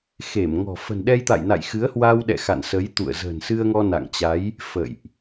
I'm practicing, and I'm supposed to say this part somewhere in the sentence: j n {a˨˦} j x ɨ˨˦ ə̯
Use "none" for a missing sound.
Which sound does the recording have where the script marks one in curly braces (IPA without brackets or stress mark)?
a̰˧˨